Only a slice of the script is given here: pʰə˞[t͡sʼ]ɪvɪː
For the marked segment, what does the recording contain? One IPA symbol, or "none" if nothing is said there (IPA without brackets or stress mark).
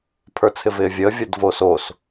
t͡sʰ